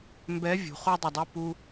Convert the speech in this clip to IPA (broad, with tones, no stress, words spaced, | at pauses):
mbɛ˧˥ vʲṳ˨˩˦χu˥dˤʌ˦˨dˤu˧˥˧ pu˥